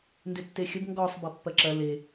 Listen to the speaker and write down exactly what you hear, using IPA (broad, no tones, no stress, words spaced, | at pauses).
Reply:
ndɪtːexʲəb ŋɡɔsˤ bɐpːɐǁɐ le